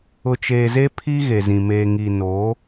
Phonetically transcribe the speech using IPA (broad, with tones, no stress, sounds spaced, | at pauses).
ʊ˨ t͡ʃ eː˨ z e˦ pʰ i˦ ɣ e˨ z ĩ˨ m eː˨ ŋ i˨ n oː˨˦